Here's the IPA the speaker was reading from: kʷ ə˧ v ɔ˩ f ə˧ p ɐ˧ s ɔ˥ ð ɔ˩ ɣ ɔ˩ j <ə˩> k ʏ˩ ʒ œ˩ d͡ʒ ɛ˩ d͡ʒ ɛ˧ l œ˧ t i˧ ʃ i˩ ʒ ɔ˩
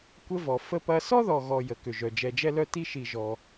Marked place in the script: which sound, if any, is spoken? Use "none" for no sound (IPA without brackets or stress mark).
ə˩